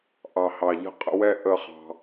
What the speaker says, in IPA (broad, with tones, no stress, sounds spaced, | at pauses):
ʔ ɑ˨˩ h ɑ˨˩ ʎ ə̤˥˧ qʼ ə̰˧ w ɛ˥˧ ʔ ə˥˧ χ ɑ̤˧